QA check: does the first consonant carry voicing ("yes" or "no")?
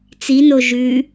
no